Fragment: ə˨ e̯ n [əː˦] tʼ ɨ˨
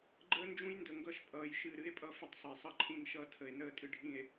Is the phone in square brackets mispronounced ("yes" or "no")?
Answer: no